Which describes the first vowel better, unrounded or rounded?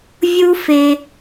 rounded